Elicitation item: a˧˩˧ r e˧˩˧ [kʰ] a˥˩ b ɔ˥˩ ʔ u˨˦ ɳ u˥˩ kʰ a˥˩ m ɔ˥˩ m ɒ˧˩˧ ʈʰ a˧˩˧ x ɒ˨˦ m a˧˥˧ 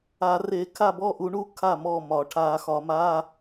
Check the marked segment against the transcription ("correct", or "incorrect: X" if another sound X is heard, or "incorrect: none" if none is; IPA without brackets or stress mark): correct